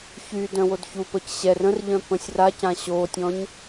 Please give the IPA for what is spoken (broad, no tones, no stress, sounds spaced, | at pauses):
ç y d œ̃ w o d ç u p ə c ɕ ɛ r ə̃ r ʎ œ̃ p ə̃ sʲ r a c ã ɕ o tʲ ɔ̃ ɲ